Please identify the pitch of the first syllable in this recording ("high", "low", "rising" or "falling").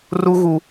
high